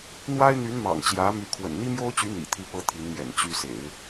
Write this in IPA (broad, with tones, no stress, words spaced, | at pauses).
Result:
n̪wa˥ɪ̯n̪y˧˥nmɑ̰˨˩ŋ t͡ɕjä˧˥my˧˥ kʰwə̰˨˩nn̪i˥mjo˥ʊ̯t͡ɕy˧˥ n̪ḭ˨˩t̪ʰi˥˩pɤ˥ t̪ʰi˧˥nmjɛ̰˨˩n t͡ɕy˧˥sḛ˨˩˦ɪ̯